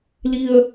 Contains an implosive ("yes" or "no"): no